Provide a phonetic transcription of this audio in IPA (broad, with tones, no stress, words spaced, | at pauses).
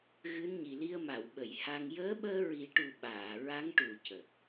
ɣɨ˧˥nɲi˨˩li˧ə̯ ma˨˩˨wɓə˨˩˨j ha˧ŋ jəː˧˥ɓəː˧ ɹi˨˩˦ʈu˨˩ ɓaː˨˩˨ ɹa˧˥ŋʈu˨˩˨ cə˨˩k̚